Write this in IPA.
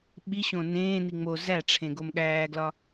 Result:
ɓ i ɕ õ n ẽː n i ŋ͡m o z æ ʈ͡ʂʰ ẽ ɡ o m ɠ æː ɡ l ɒ

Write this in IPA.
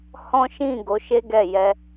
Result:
h ɔ̃˦ ʃ ĩ˦˨ ɡ o˨˦ ʃ e˦ ɡ ɛ˦˨ j ɛ˧

